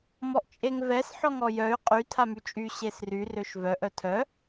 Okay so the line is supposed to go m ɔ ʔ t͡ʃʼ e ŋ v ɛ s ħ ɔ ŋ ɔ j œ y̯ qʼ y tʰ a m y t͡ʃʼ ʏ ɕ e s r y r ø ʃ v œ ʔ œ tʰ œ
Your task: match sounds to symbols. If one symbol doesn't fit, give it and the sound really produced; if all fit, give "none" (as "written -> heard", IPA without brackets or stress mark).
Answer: ʏ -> y